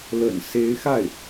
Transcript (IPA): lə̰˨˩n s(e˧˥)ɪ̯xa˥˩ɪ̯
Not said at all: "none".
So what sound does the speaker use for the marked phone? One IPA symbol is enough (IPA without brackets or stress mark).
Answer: e˧˥